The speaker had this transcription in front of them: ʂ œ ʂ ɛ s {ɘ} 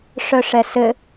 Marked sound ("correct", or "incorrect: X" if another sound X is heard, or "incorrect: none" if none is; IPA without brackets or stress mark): correct